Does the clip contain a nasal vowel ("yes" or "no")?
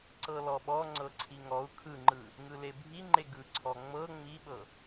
no